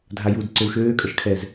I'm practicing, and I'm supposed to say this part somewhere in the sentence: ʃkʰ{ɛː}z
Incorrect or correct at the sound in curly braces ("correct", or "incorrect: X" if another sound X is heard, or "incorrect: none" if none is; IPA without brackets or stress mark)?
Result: correct